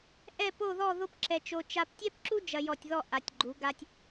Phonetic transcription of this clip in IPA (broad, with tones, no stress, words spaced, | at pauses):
ʔɛ˥˧po˥˧ðɔ˥˧ ðo˥pǁɛ˧t͡ʃo˧ t͡ʃa˧ptʲɛ˥pǁu˥ d͡ʒɐ˧jɔ˧˩tʲðɔ˥˧ ʔa˩˧tʲɡ͡ǃu˩˧ ɡa˧tʲ